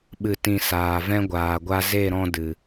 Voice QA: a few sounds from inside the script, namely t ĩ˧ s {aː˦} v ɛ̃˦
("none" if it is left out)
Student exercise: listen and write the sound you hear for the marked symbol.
aː˨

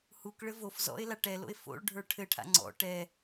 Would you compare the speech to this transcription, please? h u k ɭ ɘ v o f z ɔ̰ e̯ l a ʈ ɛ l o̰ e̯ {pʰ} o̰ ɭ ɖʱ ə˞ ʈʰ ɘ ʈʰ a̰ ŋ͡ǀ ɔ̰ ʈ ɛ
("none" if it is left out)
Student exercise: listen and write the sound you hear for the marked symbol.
f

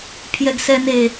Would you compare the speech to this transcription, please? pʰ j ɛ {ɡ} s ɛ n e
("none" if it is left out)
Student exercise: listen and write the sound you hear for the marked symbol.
ɡ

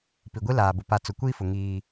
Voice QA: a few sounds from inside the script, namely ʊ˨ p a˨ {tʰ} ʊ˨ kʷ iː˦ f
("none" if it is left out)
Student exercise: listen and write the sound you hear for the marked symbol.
t͡s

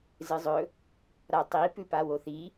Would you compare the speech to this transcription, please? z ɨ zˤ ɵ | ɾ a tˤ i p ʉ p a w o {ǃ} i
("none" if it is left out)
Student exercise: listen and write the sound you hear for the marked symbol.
θ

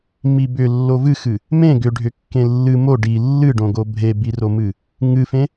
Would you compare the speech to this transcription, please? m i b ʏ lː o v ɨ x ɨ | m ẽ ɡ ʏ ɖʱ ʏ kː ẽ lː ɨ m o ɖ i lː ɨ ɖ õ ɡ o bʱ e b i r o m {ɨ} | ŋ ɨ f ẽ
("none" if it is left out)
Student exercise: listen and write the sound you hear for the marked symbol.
ɨ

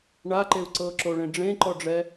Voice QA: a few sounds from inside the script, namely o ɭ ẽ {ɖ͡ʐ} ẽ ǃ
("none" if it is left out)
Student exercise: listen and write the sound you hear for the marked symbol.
ɖ͡ʐ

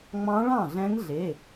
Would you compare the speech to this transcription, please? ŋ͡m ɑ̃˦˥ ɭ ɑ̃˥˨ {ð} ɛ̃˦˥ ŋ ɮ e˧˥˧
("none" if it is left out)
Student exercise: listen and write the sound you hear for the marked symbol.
ɮ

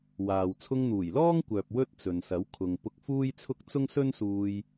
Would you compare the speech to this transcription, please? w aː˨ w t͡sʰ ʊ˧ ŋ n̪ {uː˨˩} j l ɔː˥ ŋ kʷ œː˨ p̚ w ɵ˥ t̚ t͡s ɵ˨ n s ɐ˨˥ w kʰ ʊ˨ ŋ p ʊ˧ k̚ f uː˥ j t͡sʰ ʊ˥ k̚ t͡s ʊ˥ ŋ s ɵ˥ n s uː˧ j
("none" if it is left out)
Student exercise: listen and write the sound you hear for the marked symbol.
uː˨˩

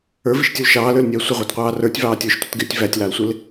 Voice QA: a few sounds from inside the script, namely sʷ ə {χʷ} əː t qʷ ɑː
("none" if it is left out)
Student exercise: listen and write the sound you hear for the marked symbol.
ʁʷ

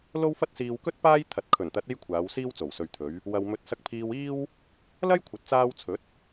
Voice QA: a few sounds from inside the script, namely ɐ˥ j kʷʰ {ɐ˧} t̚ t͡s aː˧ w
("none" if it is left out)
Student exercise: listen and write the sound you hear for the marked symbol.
ɐ˨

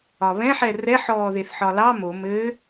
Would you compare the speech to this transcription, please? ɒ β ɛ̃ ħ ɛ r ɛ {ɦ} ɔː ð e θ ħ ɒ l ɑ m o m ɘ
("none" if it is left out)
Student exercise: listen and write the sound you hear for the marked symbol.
ħ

